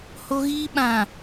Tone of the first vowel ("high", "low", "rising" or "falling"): high